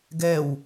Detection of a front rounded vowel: absent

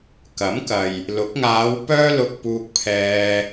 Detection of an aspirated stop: present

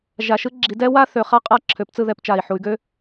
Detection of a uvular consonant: present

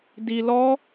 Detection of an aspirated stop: absent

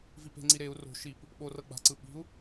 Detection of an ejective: absent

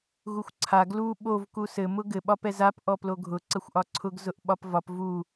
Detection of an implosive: present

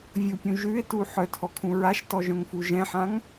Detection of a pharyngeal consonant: present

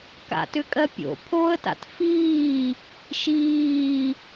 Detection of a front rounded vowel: present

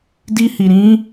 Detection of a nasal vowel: present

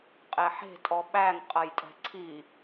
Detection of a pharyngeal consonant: present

